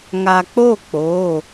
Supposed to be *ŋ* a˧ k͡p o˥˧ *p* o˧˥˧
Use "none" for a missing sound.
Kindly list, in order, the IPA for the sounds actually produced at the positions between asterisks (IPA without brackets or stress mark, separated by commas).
ŋ, k͡p